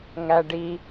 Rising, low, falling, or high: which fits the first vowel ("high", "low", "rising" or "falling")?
low